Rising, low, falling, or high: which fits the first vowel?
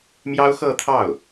high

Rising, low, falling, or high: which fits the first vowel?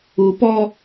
low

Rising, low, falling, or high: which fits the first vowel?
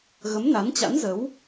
rising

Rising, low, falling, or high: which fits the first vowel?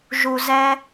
low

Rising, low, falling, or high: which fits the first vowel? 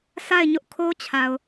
falling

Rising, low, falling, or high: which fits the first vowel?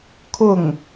falling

